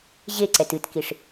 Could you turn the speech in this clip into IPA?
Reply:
ʑ e ǀ ɛ t ɨ t k i ʂ

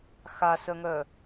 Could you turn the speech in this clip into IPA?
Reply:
x a s œ ŋ œ

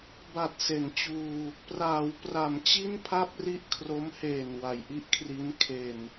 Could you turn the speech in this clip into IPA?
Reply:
b a˨˩ t̚ s e˩˦ n t͡ɕ uː˧ | p r aː˩˦ w p r a˩˦ m t͡ɕ i˥˩ n pʰ a˥˩ p̚ r i˥˩ ʔ kʰ r o˦˥ m h eː˨˩ n w a˩˦ j ʔ i˦˥ ʔ kʰ r i˦˥ n kʰ e˧ n

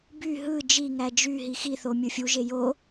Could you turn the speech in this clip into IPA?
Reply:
b y ɦ ɯ d͡ʒ i ŋ æ d͡ʒ y ɦ i x i θ o mʲ ɯ fʲ u ʒ e j o

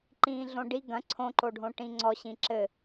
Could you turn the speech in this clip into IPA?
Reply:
ǃ ĩː ɮ õ ɖ i ɡ ɐ̃ ǀʰ õ ǃ o ɖʱ õ ʈ ĩ ŋ͡ǀ ɔ ɕ ĩ ǁ ɘ

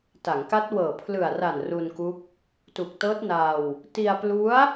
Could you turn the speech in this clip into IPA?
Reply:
t a˩˦ ŋ k a˦˥ t̚ w ɤː˨˩ pʰ l ɯ˨˩ a̯ r a˨˩ n r u˧ n k u˦˥ k̚ | t u˨˩ k̚ t ɤː˦˥ t̚ n aː˧ w | t i˧ a̯ p l u˦˥ a̯

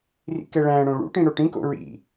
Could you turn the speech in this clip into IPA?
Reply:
r ḭ k ɛ ɭ æ̃ ɽ õ ɭ ṵ ʈ ĩ ɽ o ʈ ĩ k o̰ ɹ ḭ

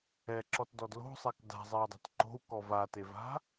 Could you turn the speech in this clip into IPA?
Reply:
ɛ ǁ ɔ t d ɔ d l o̤ sˤ ɛ k d a̤ zˤ e i̯ dˤ a̤ t ǃ o̤ u̯ k ɔ v a t e v a̤

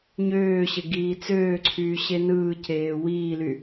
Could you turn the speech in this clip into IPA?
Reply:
ɲ øː ɕ e ɡ iː t͡s øː ǀʰ yː ɕ e n ɯː c eː w iː l y

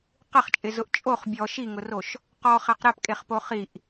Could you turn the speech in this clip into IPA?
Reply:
q ɪ χ t͡ʃʼ ɪ z ʊ ʔ t͡ʃʼ o χ bʲ ɔ ʃ i ŋ ʊ r o ʃ | q ɔ χ ɛ q ɾ ɛ p kʼ e χ p o χ i ʔ

